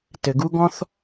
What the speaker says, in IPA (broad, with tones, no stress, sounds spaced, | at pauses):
t ɘ˩ ɡ u˥ ɡ ɔ̃˥ θ